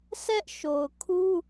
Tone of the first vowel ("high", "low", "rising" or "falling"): high